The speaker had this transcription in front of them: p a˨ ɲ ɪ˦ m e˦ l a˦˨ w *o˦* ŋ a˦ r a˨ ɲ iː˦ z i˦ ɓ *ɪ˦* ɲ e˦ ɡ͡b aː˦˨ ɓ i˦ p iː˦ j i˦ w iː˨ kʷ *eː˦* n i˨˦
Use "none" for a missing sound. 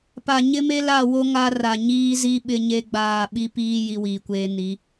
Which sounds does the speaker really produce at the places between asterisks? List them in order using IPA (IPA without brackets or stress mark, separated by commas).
o˦, ɪ˦, eː˦